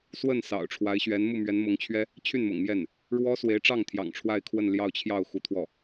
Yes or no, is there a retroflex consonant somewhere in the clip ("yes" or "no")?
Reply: yes